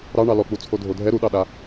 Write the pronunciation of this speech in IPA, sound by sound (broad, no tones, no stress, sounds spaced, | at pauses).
ɾ ɑ ɳ ɑ l ɔ k͡p u t͡sʰ o dʱ o dʱ ɛ ɾ u ɗ ɑ ɗ a